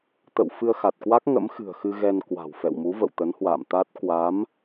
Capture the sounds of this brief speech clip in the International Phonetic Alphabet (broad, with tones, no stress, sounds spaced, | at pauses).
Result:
t̪ ə̰˧˨ w f ɨ˧ ə̯ x a˨˩ t̚ k w a˦˥ k̚ ŋ ə̰˧˥ m x ɨ̤˨˩ ə̯ x ɨ˧ ɣ ɛ˧ n k w a̤˨˩ w f ɛ̰˧˨ w m u˨˦ v ə̰˧˨ w t̪ ə˨˦ n h w a̰ː˧˨ m t̪ a˦˥ t̚ k w a˨˦ m